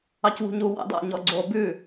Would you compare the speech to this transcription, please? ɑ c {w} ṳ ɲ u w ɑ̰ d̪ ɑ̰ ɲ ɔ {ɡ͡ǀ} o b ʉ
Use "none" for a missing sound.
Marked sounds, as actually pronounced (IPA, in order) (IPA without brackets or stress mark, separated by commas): w, ɡ͡ǀ